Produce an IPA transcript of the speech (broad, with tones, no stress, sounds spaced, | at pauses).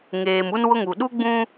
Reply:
ŋ eː˨ m u˦ n w ʊ˦ ŋ u˨ ɗ u˦ ɡ͡b ũ˦